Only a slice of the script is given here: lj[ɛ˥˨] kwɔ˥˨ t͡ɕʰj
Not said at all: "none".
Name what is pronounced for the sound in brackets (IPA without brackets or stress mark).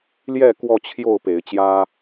ɛ˥˨